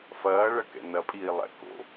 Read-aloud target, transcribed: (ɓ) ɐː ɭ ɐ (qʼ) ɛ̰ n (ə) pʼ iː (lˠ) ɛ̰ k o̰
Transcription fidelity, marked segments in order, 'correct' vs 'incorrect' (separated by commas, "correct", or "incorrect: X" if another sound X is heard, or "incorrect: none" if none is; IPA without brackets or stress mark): incorrect: f, incorrect: k, incorrect: ɐ, correct